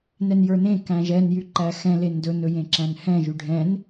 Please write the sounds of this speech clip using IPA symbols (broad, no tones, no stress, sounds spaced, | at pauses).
n ɛ n j ə˞ n ẽ k æ̃ ʒ ɛ n j y ǃ æ x ɛ̃ l e n d ɵ n ɵ j ẽ ǁ æ̃ n h ɛ̃ ʒ y ɖʱ ɛ̃ n